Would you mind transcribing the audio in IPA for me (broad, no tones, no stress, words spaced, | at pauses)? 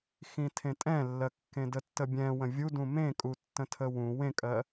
xĩtʰẽtʼɛ̃lːɜ kːẽdətːəbʲɛ̃ wə̃vʲu dũmẽkʼu tːə̃tʰəwũ wẽkʼɜ